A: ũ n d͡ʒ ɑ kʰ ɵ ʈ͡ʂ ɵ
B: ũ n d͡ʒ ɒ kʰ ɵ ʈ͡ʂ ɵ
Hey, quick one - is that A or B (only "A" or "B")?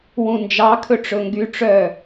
A